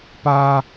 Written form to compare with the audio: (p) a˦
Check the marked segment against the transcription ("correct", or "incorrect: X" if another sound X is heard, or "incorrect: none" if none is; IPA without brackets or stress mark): correct